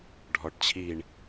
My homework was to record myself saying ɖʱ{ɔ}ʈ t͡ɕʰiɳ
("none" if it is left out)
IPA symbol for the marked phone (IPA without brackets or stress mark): ɔ